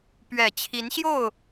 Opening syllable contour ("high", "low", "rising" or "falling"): low